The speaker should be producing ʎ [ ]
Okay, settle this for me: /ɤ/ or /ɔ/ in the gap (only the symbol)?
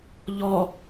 ɔ